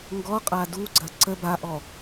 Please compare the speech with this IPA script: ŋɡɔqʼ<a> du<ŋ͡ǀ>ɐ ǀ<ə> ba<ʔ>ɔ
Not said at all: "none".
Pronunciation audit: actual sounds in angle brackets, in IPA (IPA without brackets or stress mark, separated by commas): a, ɡ͡ǀ, ə, ʔ